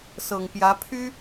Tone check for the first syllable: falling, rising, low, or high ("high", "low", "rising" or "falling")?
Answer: low